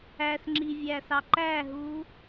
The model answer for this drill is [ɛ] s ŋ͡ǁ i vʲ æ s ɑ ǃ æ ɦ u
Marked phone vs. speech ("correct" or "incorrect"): incorrect